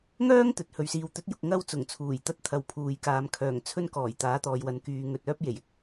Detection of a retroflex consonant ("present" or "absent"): absent